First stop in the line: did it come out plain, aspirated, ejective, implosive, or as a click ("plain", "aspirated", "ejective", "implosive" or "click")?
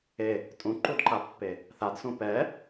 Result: ejective